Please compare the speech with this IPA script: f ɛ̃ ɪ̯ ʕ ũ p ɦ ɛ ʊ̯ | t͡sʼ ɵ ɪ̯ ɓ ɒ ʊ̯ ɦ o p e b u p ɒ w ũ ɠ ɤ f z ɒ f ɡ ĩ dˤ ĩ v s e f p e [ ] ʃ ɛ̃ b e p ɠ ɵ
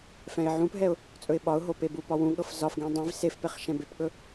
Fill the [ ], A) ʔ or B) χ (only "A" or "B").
B